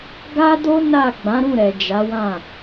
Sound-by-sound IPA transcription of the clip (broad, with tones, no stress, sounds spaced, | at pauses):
ɡ a˦ d o˦ n a˦˨ ɡ͡b ã˨˦ ɾ ũ˦˨ ɾ ɛ˨ d͡ʒ a˨˦ w ã˦˨